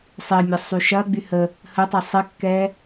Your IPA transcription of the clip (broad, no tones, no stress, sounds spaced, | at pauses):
sˤ ɪ mʲ ə sˤ y ʃ ɐ ɡ͡b y h ə | h ə tˤ ɛ sˤ ɪ kː ɛ